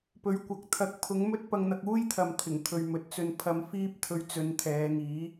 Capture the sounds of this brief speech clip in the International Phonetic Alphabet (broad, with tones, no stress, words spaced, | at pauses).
pɵ˨˧ɥkʷɐ˨k̚ t̪ʰɐ˨˥k̚pʰʊ˨˥ŋmɵ˥t̚ pɐ˧ŋn̪ɐ˧k̚uː˥jt̪ʰɐ˨m t̪ʰɪ˨˩ŋt̪ʰɵ˨ɥ mɵ˨t̚t͡sɵ˧n pʰɐ˧mfiː˥p̚t̪ʰɵ˧ɥt͡sɵ˨˧n t̪ʰɛː˨˧ŋiː˨˥